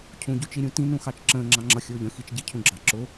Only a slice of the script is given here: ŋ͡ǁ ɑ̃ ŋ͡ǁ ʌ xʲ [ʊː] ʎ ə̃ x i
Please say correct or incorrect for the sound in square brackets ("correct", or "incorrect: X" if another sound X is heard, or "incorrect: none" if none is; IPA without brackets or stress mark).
correct